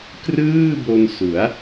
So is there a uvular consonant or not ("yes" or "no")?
no